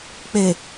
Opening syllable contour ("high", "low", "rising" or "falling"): low